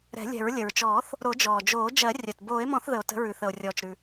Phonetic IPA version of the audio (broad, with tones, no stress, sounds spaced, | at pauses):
ɾ ɛ̤˨˩˦ lʲ ɛ̤˨˩˦ ɹ lʲ ə˩ ɹ t͡ʃ ɔː˨˩˦ θ | ɾ o˨˩˦ d͡ʒ ɔː˩ d͡ʒ oː˨˩˦ d͡ʒ ɜ˨˩˦ rʲ œ˩ t b oː˨˩˦ e̯ m ɔ̃˨˩˦ θ ð ə˩ o̯ t ə̤˨˩˦ ɹ ʉ˩ θ ə˩ o̯ rʲ ɔː˩ t͡ʃ ɾ ʉ˩